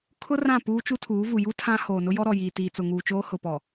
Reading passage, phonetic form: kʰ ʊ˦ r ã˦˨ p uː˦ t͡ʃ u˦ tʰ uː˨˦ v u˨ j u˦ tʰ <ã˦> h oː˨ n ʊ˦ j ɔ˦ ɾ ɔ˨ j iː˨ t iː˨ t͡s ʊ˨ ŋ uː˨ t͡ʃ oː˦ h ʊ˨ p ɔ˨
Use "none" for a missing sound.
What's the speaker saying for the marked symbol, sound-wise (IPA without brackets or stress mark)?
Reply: ã˦